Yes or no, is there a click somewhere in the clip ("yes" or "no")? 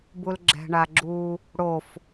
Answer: yes